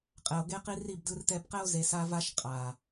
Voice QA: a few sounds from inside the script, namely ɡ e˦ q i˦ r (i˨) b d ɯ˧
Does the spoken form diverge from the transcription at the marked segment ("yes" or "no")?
yes